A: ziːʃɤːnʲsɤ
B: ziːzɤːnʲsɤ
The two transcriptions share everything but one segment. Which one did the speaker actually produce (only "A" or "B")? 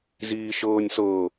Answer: A